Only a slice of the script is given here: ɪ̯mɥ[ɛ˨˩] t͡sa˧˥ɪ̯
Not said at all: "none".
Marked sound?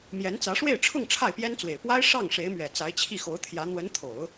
ɛ˨˩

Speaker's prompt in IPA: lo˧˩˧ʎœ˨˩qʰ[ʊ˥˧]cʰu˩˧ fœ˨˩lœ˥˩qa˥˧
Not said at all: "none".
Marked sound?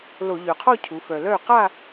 ɔ˥˧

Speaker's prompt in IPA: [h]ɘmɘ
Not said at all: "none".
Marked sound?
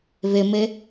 β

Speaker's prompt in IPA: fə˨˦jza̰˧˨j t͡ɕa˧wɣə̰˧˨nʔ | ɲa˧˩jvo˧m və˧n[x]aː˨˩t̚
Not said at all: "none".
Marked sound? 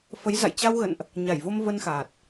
x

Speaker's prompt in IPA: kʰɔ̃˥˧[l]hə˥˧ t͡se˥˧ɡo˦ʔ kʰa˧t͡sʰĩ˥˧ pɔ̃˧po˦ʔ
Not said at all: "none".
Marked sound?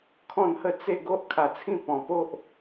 n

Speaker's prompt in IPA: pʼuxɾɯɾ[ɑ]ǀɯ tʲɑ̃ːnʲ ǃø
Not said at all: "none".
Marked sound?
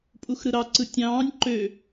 ɑ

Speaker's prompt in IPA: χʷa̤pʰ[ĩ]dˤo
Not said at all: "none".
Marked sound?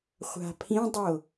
ĩ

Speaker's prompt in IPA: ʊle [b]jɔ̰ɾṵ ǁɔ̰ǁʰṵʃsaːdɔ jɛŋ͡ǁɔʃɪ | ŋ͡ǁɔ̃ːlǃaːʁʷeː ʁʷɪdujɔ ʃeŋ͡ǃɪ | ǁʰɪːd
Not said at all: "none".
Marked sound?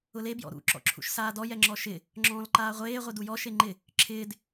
b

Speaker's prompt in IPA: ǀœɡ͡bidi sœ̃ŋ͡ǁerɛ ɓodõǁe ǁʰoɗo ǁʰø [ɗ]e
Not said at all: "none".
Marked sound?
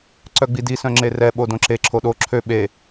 ɓ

